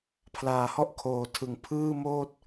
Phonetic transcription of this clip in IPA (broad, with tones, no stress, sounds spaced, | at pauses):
pʰ l aː˨˩ h ɔ˥˩ ʔ kʰ oː˨˩ tʰ ɯ˨˩ ŋ pʰ ɯː˥˩ m oː˥˩ t̚